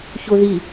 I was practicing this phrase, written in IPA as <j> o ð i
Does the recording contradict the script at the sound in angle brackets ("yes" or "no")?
yes